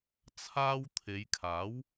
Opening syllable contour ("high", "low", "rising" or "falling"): high